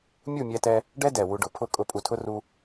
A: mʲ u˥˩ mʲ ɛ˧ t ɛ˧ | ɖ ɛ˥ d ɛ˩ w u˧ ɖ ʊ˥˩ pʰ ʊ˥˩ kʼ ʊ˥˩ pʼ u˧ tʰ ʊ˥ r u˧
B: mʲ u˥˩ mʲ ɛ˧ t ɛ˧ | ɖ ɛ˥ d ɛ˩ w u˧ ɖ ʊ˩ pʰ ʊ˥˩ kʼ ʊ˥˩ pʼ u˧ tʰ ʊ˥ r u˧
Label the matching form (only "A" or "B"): B